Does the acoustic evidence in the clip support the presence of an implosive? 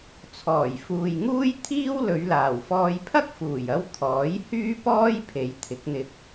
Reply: no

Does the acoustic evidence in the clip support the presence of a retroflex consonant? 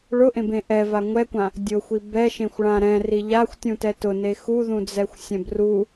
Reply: yes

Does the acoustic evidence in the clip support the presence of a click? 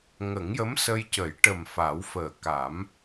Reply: no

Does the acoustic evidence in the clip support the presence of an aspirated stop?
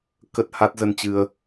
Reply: no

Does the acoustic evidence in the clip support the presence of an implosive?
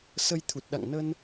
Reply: yes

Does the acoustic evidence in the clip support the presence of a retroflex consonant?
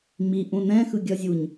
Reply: no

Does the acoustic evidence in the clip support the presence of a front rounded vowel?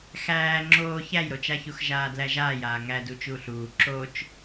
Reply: no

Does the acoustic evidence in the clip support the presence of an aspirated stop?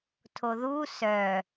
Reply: yes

